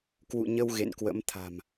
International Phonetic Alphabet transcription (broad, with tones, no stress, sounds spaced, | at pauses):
k w ṵ˧˨ ɲ ə˧ w ɣ ḛ˧˨ n k w ə̰˧˥ m t̪ʰ a̤˨˩ m